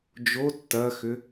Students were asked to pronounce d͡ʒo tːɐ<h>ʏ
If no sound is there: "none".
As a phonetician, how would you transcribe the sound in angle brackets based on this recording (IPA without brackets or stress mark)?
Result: x